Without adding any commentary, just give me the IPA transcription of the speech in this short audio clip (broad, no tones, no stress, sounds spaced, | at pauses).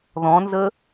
ð ɔ̃ n z ə